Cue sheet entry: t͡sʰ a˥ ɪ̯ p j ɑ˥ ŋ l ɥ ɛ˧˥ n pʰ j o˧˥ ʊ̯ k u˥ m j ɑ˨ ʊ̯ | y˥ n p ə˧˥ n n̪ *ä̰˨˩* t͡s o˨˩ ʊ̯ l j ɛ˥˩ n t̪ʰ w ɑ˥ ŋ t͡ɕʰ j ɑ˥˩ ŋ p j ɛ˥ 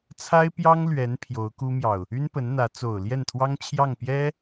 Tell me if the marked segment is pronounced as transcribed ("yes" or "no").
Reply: no